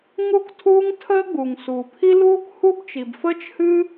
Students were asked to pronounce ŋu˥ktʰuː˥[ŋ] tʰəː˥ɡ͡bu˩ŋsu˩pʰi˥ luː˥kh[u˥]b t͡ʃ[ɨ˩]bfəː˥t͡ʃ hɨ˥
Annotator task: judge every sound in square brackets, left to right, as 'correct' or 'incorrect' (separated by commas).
correct, correct, incorrect